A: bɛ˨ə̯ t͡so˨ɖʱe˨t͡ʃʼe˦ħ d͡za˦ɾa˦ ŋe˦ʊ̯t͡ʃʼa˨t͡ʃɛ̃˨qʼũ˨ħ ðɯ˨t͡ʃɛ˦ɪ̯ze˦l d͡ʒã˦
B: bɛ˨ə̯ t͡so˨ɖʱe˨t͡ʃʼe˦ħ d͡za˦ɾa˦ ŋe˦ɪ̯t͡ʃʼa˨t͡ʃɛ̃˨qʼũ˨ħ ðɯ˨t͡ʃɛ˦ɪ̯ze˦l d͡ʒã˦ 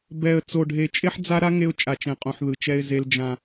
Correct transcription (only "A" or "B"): A